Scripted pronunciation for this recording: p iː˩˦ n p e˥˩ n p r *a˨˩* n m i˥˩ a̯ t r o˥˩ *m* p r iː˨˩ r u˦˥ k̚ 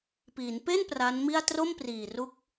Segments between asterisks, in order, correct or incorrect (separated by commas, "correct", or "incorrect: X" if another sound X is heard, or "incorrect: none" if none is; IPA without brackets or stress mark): incorrect: a˦˥, correct